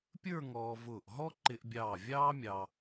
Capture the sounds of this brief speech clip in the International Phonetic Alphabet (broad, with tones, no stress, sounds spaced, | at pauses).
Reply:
pʲ ə˞˥˧ ŋ ɔː˧ v ʊː˧˩ ʔ ɦ ɔ˥ ǃ ɪ˧ ʔ bʲ ɑː˧˩ vʲ ɑː˥ mʲ ɑ˧